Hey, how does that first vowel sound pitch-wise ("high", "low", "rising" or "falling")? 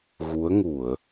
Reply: rising